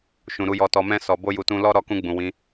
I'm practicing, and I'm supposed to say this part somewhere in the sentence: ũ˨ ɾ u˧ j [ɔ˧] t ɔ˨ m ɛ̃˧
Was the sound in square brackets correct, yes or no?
yes